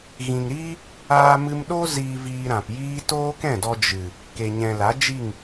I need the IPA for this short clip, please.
ɣ ĩ˨ ŋ ɾ iː˦ | aː˧ m ɨ˧ m ɗ o˦ z iː˧ v iː˧ ɾ ã˨ p j iː˦ t oː˦ k ɛ̃˦˨ d ɔ˧ d͡ʒ ɨ˨ | k e˨ ɲ ɛ̃˨ l a˨˦ d͡ʒ i˦˨ ŋ

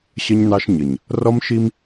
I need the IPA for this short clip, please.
ɕ ə˦ ɲ n ɑ˦ ʃ ɲ ə˨ ɲ | r ɔ˦ m ʃ i˦ m

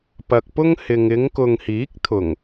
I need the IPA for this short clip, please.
p ɐ˨ k̚ p ʊ˥ ŋ h ɪ˨ ŋ ɪ˨˧ ŋ k ʊ˨ ŋ h iː˨˥ k̚ t̪ʰ ʊ˨˩ ŋ

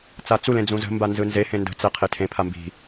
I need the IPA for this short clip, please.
t͡s a t͡s u l ẽ d͡z ũ z ə̤ m b a n z ɯ n z e h ẽ n d ə̤ t͡s ɛ qʰ e tʰ ẽ pʰ a m b i̤

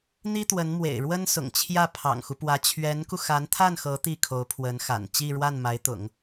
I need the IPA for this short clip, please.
n̪ i˥ t̪ w ə˧˥ n m w ḛ˨˩ ɪ̯ ɻ w ə˥ n s ʊ̰˨˩ ŋ t͡ɕʰ j ä˥˩ pʰ ɑ̰˨˩ ŋ x u˦ p w ä˧˥ t͡ɕʰ ɥ ɛ˧˥ n k u˧ x a˧˥ n t̪ʰ a˥˩ n x ɤ˧˥ t̪ i˥˩ kʰ o˧˥ ʊ̯ pʰ w ə˧˥ n x a̰˨˩ n t͡ɕ i˥˧ ɻ w a˥˩ n m a˧˥ ɪ̯ t̪ ʊ̰˨˩˦ ŋ

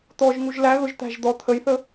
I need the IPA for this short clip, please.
t̪ ɔ ʒ ŋ u ʒ l æ ɣ ʊ ʒ t̪ æ̤ ʒ d̪ ɔ t̪ʰ ə j θ ə

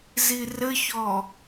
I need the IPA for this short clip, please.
z i r ɘ ç ɔ

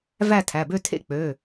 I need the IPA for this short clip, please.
v æ˥˧ tʰ æ˩˧˩ b ø˥˧ tʰ ḛ˥˧ k͡p ø˩˧˩

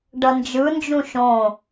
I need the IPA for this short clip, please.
ɖ ʌ n d͡ʒ ɯ n d͡ʒ ũ ʃ õ

